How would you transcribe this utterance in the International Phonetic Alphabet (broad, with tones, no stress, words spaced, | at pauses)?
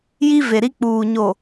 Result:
ji˦ve˨ ɾi˦k͡puː˨ ɲo˨